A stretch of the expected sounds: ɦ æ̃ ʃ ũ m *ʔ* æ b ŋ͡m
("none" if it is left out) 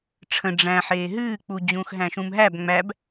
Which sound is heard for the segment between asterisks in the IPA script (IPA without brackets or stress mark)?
ɦ